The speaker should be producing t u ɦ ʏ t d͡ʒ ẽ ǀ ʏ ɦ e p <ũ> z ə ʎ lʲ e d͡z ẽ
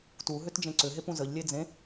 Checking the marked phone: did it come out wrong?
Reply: no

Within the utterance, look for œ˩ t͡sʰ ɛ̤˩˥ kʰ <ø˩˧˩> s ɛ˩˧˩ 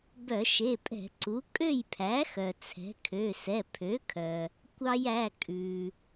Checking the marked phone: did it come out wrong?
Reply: no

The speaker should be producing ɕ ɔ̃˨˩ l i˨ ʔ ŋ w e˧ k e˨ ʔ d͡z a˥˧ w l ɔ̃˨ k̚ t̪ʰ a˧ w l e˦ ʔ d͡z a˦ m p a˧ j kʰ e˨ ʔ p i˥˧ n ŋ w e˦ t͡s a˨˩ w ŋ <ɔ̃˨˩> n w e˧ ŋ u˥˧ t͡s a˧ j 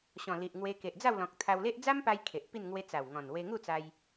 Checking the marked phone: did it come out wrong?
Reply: no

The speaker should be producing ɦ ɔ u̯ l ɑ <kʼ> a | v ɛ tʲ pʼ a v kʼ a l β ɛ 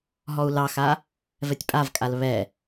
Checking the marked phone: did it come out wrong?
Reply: yes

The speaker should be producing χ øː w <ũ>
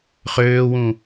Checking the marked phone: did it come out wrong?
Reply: no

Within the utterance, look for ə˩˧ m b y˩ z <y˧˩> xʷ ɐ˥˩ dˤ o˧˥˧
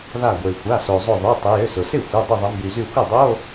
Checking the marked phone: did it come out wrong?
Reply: no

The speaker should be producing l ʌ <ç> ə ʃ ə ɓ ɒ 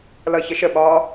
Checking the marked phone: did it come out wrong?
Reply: no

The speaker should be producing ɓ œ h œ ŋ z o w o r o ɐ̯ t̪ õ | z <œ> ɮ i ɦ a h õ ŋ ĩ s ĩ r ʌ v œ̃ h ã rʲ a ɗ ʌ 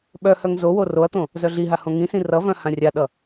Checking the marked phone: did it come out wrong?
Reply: no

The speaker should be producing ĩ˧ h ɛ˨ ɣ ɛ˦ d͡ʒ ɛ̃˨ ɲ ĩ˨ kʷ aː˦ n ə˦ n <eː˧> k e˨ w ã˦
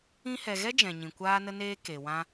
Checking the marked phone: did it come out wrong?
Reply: yes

